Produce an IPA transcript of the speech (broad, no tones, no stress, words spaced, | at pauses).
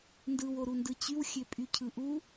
ndɯwoɾundɯ t͡ɕywxʲøpʼy cʰɯʔu